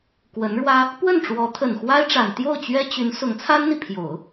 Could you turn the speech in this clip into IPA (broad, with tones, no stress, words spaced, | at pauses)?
kwə˧˥nɻwä˥ | pwə˥˩nʈ͡ʂwɔ˧˥ t̪ʰə˨˩nxwa˥ɪ̯ʈ͡ʂa˨˩n t̪jo˥˩ʊ̯t͡ɕɥɛ˥t͡ɕy˧˥n sʊ˧˥ŋt͡sʰa˥nn̪i˨ pʰjo˨˩˦ʊ̯